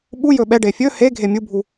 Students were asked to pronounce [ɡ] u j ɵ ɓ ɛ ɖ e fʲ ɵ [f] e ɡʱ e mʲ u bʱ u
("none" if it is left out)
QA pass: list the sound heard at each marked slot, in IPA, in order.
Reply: ɓ, h

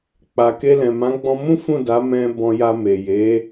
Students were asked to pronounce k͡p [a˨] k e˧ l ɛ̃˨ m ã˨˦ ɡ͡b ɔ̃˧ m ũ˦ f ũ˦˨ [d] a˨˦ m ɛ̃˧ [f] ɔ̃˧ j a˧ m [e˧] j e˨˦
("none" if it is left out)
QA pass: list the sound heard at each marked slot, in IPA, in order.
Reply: a˨, d, b, e˨

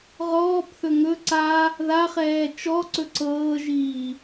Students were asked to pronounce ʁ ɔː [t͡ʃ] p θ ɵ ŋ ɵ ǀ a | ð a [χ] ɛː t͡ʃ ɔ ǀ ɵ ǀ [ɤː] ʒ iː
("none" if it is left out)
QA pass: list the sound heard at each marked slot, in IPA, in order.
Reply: none, χ, ɤː

